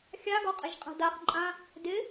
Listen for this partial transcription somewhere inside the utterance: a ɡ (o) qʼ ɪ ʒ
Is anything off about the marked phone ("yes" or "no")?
yes